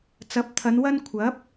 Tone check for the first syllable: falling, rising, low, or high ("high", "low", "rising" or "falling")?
rising